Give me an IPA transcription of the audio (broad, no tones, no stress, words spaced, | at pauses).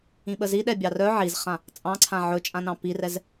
ĩɓəziɗɛ bʲɑrœ ʕizχã | t͡sʼɑ̃ǀʰã ʕɵt͡ʃʼãnɑ̃ pirɛz